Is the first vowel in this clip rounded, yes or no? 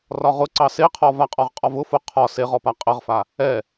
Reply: yes